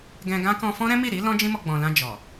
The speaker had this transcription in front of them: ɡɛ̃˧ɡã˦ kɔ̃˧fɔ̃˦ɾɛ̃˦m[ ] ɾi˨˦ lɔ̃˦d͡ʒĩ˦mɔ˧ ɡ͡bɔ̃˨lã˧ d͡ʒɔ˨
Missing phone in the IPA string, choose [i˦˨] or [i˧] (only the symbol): i˦˨